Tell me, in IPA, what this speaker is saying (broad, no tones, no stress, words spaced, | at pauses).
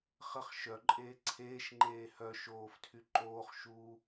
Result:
χəχ ʃœǃʼeː ǀʰeːʃŋ͡ǃeː hœ ʃoːftʰy ǃoːχ ʃu